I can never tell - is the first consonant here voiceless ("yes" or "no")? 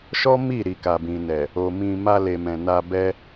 yes